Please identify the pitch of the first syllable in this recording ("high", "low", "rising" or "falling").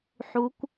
rising